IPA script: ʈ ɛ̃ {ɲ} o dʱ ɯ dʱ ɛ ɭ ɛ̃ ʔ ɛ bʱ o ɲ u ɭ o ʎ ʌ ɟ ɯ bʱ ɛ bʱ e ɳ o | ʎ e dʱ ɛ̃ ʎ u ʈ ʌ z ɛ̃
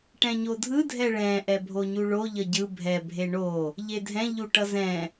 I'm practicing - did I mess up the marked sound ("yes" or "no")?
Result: no